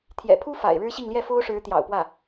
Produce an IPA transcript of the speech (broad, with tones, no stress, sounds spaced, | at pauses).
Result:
t̪ʰ j ɛ̰˨˩ pʰ u˥ f a̰˨˩ ɪ̯ ɻ ɻ̩˥ ɕ i˥˧ ŋ l j ɛ˥˩ f o˥ ʊ̯ ʂ ɻ̩˧˥ t̪ j ɑ̰˨˩ ʊ̯ p w ä˥˩